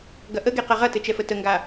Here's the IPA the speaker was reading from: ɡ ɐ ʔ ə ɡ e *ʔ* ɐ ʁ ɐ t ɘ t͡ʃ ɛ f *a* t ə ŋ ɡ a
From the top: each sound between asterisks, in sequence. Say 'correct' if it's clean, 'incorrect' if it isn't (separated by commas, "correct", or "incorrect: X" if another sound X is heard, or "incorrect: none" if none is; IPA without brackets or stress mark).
incorrect: q, incorrect: ə